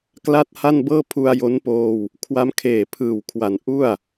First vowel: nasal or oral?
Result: oral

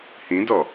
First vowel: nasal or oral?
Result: nasal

